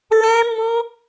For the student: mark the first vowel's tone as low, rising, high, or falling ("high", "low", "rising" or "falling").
high